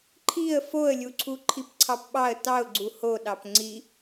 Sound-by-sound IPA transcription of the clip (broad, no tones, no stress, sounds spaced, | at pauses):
ǃʰ i ə̯ f o ə̯ lʲ u ǀʰ u ǃʰ i p ǀʰ ɑ p ɓ ɑ ə̯ t ɑ ʊ̯ ɡ͡ǀ u h o ɗ ɑ p ŋ͡ǀ i